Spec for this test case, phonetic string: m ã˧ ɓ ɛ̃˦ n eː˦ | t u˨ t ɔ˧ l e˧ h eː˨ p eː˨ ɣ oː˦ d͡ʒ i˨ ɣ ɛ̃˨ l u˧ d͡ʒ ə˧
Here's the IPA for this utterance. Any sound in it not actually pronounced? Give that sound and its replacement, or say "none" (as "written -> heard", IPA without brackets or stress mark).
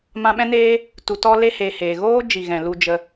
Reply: p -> h